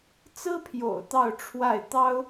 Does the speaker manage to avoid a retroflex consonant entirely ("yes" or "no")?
no